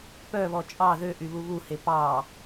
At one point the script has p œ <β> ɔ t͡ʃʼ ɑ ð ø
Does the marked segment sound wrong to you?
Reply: no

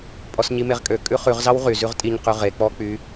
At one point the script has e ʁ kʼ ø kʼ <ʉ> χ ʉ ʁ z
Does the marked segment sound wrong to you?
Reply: no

